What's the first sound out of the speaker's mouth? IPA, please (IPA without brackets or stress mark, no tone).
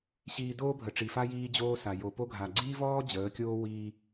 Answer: ɕ